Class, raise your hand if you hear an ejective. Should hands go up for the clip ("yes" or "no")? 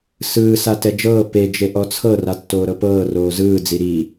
no